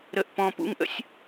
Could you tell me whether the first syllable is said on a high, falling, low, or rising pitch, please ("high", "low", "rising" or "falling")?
high